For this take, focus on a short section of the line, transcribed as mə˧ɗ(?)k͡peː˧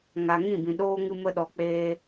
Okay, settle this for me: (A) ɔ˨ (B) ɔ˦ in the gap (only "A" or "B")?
A